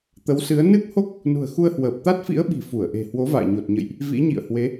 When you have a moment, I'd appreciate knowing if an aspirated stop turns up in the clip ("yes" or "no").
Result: no